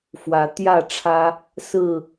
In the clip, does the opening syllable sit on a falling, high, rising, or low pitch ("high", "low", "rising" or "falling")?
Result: rising